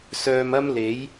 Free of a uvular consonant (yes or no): yes